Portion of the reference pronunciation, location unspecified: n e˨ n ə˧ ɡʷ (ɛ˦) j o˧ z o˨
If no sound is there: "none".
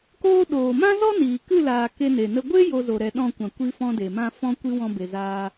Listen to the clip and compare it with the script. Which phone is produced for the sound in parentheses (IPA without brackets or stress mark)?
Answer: e˦